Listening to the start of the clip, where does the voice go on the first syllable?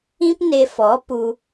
high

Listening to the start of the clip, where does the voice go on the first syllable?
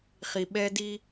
low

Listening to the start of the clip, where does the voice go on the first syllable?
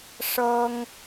high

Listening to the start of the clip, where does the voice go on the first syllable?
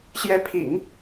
rising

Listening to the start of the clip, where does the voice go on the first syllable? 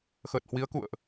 low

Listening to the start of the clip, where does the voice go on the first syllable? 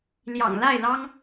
low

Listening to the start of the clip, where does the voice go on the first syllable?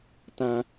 low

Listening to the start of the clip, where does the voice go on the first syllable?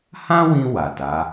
high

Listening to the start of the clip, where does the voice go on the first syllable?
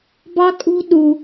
high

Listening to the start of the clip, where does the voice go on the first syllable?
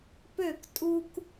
falling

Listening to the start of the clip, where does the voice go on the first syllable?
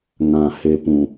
low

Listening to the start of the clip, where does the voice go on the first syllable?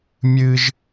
high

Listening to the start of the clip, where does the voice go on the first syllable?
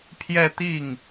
falling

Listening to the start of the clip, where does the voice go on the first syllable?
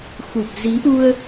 low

